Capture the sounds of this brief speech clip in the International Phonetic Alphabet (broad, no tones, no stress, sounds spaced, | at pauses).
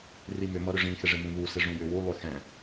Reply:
r i m ʏ m ʌ ɾ ʏ ʐ ĩ x ɪ ʐ ɪ m ũ β u s ɪ ʐ ũ j ʏ w u lˠ ʏ x ɛ̃